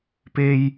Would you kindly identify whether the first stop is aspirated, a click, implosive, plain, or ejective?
plain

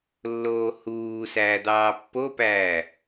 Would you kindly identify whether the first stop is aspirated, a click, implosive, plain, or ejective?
plain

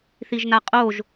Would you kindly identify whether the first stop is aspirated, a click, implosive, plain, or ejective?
ejective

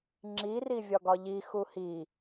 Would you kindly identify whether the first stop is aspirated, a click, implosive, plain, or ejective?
click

